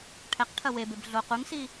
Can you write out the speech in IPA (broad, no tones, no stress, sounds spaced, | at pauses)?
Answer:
ʈʰ ɛ q ʈʰ ɐ w e b e b ɮ o q u ŋ s i